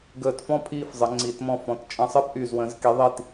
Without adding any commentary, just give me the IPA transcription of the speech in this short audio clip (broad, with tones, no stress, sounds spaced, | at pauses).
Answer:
ɡ əː˧˩ t f ɔ̃˥˧ pʰ iː˥˧ f zˤ ə˩˧ ŋ͡ǀ iː˩˧ t m ɔ̃˧ f ɔ̃˩˧ t t͡ʃʼ ə̃˧˩ sˤ əː˥ p ʔ y˧˩ z w ə̃˩˧ z k i˩˧ ðˤ i˧˩ t